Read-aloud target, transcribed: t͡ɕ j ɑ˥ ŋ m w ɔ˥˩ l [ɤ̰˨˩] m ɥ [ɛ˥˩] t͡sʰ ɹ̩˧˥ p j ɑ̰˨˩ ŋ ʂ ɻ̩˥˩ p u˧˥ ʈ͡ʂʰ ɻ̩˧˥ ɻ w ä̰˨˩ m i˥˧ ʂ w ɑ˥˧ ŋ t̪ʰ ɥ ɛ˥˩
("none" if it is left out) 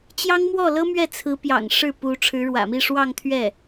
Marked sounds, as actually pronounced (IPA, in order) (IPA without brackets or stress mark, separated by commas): ɤ˥, ɛ˥˩